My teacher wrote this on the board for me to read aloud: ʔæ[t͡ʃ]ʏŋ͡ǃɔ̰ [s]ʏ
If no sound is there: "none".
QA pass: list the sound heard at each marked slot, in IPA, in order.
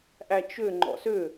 t͡ʃ, s

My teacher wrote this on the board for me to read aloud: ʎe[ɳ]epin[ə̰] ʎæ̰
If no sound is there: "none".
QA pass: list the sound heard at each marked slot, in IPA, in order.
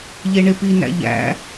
ɳ, æ̰

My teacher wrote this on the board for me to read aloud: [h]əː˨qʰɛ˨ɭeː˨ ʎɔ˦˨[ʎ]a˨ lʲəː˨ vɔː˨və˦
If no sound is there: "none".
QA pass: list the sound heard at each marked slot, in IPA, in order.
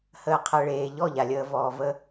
h, ʎ

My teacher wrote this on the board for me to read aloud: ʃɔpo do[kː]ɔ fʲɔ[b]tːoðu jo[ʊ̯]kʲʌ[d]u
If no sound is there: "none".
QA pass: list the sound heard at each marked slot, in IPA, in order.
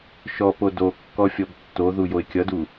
kː, b, ɪ̯, d

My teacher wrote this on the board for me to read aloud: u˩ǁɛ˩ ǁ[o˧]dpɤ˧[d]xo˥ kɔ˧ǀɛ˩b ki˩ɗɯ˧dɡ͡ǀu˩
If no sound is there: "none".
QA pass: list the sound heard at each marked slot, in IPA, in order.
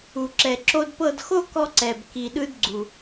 o˧, d

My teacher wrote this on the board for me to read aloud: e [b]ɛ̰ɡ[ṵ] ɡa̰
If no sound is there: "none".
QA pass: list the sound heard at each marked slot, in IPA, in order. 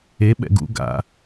ɓ, ṵ

